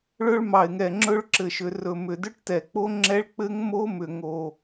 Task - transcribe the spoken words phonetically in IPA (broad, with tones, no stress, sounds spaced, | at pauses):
ɭ ɵ˦˥ ɭ m ɑ˨˩ ɪ̯ ŋ ɛ˨˩ ŋ͡ǁ ɵ˦˥ ɭ ǁ ɘ˨˩ ʃ ʏ˨˩ r ɵ˨˩ m ʏ˨˩ d ʏ˦˥ ʈ t ɛ˨˩ k͡p o˦˥ ŋ͡ǁ ɛ˦˥ ɭ k͡p ɘ˦˥ ŋ m o˦˥ m ʏ˨˩ ŋ o˨˩